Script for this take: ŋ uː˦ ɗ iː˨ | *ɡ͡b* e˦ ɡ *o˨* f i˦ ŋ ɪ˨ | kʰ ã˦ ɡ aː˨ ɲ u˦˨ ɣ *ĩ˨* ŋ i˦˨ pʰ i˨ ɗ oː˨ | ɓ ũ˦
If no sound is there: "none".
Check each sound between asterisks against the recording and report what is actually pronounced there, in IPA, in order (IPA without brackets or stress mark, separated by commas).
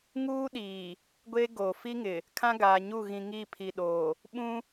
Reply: ɡʷ, o˨, ĩ˨